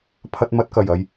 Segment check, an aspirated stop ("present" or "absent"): present